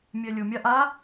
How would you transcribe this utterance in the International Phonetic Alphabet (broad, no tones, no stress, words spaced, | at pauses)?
mʲɛlʲʊ mʲaʔa